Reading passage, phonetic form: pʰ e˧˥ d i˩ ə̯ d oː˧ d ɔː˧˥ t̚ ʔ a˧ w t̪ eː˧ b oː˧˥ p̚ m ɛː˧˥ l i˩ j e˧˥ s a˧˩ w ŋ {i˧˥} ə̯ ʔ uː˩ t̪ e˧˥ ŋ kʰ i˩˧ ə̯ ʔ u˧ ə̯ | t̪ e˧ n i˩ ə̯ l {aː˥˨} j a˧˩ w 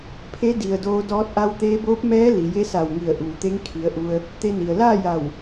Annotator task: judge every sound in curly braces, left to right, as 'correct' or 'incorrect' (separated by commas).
incorrect, correct